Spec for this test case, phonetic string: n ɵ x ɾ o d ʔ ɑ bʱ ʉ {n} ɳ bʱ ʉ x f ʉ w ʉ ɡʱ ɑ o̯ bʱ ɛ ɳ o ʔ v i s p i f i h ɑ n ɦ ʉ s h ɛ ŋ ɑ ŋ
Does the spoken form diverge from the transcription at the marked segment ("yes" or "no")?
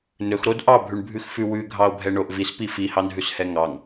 yes